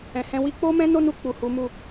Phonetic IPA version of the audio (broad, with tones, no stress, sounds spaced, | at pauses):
ɛ̃˨ h ɛ̃˧ w i˦ k͡p o˦ m ɛ̃˦ n o˦ n u˧ k͡p u˨ h u˨˦ m u˦˨